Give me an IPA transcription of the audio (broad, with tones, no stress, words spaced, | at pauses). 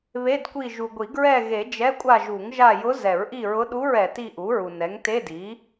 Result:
βe˧˥˧dkʷi˦˨ ʒu˨ɡʷi˨˩˦ ɡɹɛ˦˨ɣe˨˩˦ d͡ʒɛ˧˥˧kʷʼa˦˨ ʒu˨˩˦ŋʒa˦˨jʊ˧˥ zɛ˨˩˦ɹʔi˦˨ɹʊ˧˥ɗu˧˥˧ɹ ɛ˨ ti˦˨ʔu˩˥ɹu˨ nɛ˩˥ŋte˧˥˧di˩˥